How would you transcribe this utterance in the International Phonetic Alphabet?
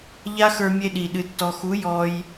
ʎ a˦ x ə˞˧ mʲ e˧ ɗ i˨ ɗ ɨ˨ tː ɔ˨ x u˨˦ j ɔ˧ j

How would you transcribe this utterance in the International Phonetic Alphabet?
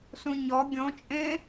s ũ ɲ ɔ ɡʲ õ t͡ʃʼ ẽ

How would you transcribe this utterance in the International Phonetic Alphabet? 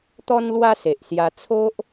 t̪ ɔ˦ n l w a˦ s e˨ ʔ s j a˧ t͡sʰ o˦ ʔ

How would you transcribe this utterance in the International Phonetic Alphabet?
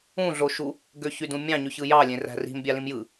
ũ ɮ o ʃ u | ɡ ø ç y d ũ mʲ ɑ̃ ɲ y ç ɯ j ɑ lʲ ẽ r æ̤ r i̤ m bʲ ɑ l ĩ m j ɯ

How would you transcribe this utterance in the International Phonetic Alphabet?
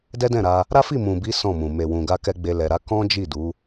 d ɛ˦ d ɛ̃˦˨ ɾ a˧ | ɾ a˦ f i˦˨ m ũ˨ b i˨˦ s ɔ̃˦˨ m ũ˨ m e˨ w ũ˨ ɡ a˧ k ɛ˧ ɡ͡b e˧ l ɛ˨ ɾ a˨˦ k ɔ̃˦ d͡ʒ i˦˨ d u˨˦

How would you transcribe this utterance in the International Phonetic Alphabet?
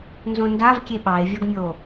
n z õ n d a v kʲ e ɓ ɑ e̯ vʲ ɒ ɡ mʲ o

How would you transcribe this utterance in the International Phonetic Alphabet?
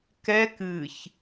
k ɛ k ɨ ç

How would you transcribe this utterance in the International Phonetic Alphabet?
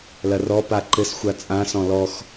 l ɐ r ɔ p a ǃ ɘ s xʷ a t͡sʼ ã s ɔ̃ l ɔ x

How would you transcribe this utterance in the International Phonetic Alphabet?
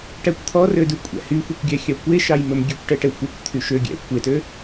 ʈ æ kʷ t̪ʰ ɔ r ø d ʉ kʷʼ æ̰ h y xʷ ɛ kʷ ɡʲ æ xʲ ɑ kʷ e ʃ ɑ j m ɵ m ɡʲ ø kʷ ʈ ɛ ʈ ɛ xʷ ɛ kʷ t̪ʰ y ʃ ø ɡʲ æ̰ kʷ e t ø

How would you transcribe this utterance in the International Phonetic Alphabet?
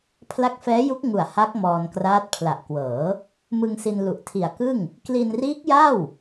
pʰ l a˦˥ k̚ f ɛː˦˥ j u˦˥ k̚ ŋ u˨˩ a̯ h a˦˥ k̚ m ɔː˧ n k r aː˦˥ t̚ pʰ l a˨˩ ʔ k w ɤː˩˦ | m ɯ˧ ŋ s i˧ n l u˨˩ ʔ tʰ i˨˩ a̯ k ɯ˥˩ ŋ | k l i˧ n r iː˦˥ k̚ j a˥˩ w

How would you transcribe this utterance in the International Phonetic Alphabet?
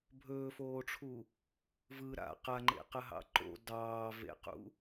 bʱ ɵː f oː ʈ͡ʂʰ u | v ɯ ɾ a̰ q a ŋ͡ǃ ḛ q ə ɦ ɑ̰ ǃ o̰ d ɑː v ḛ q ṵ

